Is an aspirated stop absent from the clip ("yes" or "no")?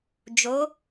yes